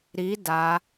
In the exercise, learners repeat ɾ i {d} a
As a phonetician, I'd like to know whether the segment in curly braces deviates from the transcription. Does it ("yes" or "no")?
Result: no